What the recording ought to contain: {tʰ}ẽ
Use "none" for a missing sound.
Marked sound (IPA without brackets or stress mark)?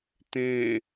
t